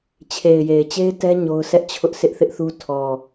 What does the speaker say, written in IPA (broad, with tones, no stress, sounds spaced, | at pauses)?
t͡ɕʰ e˨ ɪ̯ j e˨ ɪ̯ t͡ɕ e˦ ɪ̯ t ɛ˦ ɲ o˦ ʊ̯ sʰ ɛ˦ ʔ t͡ɕʰ ʊ˦ ʔ sʰ ɪ˦ ʔ θ ɪ˦ ʔ θ u˦ tʰ ɔ˨